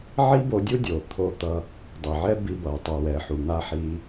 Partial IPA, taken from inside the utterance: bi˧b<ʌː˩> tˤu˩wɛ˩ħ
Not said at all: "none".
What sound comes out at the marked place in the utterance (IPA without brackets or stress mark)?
ʌː˩